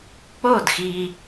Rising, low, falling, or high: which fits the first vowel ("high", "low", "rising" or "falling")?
falling